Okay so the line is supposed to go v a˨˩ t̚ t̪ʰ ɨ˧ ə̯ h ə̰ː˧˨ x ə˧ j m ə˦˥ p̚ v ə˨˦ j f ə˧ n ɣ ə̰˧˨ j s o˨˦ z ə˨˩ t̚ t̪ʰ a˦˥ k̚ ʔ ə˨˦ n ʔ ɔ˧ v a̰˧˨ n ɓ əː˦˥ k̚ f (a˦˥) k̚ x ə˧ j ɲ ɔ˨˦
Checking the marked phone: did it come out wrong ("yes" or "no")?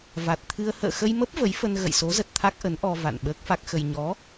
no